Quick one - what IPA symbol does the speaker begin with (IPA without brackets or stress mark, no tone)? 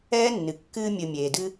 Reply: ɛː